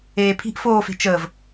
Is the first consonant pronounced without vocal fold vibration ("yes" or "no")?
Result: yes